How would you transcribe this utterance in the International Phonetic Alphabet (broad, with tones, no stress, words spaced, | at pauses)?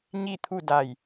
ɲi˥˨t̪ʰu˥˨da˧˩j